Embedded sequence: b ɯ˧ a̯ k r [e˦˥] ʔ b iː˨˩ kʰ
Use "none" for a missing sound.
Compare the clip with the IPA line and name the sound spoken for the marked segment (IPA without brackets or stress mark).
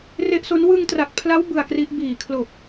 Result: i˦˥